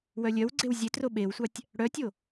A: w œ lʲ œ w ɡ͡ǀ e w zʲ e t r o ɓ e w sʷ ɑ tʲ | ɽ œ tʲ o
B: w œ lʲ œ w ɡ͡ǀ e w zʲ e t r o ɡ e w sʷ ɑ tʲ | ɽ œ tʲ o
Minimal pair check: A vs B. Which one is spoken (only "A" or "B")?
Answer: A